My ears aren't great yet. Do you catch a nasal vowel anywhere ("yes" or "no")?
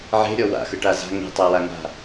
no